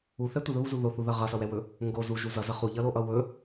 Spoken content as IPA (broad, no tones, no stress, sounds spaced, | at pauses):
u θ ɛ tʷ ʌ ð ɵ β u z u ð o θ u ð ʌ ʁ ʌ s ʌ w ɛ w ɵ | ŋ ɡ o z u ʒ u z ʌ z ʌ χ u ʎ ʌ l o ʔ ʌ w ɵ